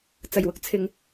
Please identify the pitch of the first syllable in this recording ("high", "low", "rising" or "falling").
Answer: low